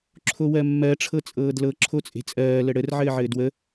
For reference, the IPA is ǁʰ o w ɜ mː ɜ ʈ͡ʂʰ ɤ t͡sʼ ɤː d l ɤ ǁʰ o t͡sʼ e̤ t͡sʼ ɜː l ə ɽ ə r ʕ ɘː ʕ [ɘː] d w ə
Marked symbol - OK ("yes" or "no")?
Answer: yes